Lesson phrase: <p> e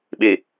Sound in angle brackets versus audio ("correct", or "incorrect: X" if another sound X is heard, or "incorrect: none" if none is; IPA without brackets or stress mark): incorrect: ɓ